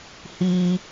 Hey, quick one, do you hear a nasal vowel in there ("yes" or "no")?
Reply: no